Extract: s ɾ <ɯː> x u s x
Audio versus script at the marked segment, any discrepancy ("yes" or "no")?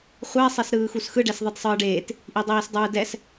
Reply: no